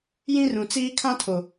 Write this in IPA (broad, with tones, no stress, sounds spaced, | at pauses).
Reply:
j ĩ˦ r ũ˨ t͡s iː˦ kʰ ã˦ tʰ o˨